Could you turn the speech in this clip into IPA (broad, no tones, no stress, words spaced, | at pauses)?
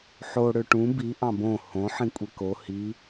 ħo ɽøʈũ bi ʔɑ̃bõ hõ ħĩkʷʼeko hi